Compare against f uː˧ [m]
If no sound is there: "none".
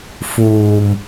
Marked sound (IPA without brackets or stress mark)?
m